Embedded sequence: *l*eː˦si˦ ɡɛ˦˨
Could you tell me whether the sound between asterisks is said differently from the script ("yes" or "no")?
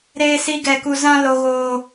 yes